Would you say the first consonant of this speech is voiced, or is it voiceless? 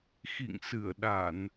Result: voiceless